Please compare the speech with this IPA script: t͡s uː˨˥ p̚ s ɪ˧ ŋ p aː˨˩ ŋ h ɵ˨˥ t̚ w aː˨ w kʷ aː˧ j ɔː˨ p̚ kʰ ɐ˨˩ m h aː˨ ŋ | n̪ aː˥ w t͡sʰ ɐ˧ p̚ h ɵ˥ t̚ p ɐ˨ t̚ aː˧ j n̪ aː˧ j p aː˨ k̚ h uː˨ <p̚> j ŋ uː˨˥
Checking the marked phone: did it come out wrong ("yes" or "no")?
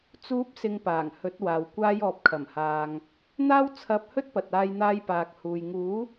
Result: yes